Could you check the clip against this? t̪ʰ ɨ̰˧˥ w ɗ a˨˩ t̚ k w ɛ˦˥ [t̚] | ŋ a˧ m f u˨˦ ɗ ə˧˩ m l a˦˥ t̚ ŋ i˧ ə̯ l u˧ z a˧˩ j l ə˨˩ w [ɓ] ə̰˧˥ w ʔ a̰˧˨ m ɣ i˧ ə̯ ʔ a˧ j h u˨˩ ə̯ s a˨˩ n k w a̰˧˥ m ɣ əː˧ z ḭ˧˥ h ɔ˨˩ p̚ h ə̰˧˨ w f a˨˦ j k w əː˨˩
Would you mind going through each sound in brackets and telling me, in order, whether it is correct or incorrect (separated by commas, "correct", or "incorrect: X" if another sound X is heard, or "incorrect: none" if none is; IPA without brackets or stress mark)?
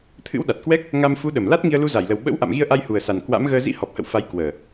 incorrect: k̚, correct